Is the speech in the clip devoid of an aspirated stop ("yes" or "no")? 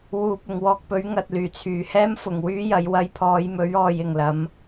no